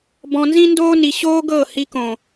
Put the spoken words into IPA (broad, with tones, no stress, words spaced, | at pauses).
bɔ̃˧nzĩ˦ndoː˦ ni˧ ɕoː˦ ɡɤ˦˨hi˧kõ˨